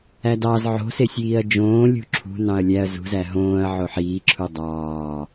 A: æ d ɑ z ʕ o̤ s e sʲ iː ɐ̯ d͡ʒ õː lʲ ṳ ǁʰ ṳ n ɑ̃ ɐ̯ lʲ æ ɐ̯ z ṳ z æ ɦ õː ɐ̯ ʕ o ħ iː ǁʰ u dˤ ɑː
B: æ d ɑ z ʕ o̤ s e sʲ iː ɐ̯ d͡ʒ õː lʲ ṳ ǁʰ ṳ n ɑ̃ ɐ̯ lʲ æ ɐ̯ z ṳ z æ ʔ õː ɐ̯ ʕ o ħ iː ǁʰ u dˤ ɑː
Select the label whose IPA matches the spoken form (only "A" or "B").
A